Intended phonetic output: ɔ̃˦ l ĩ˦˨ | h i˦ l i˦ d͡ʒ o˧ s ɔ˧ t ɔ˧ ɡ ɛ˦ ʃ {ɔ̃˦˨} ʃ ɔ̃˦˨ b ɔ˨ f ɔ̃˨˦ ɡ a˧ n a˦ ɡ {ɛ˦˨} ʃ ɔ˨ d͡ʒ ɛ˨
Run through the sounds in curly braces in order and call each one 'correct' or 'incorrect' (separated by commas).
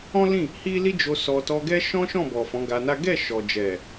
incorrect, correct